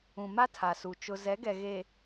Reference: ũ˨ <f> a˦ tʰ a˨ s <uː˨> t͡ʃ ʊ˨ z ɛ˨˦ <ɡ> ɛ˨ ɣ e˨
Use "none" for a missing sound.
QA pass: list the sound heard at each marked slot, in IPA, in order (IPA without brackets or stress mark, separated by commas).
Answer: m, u˨, ɡ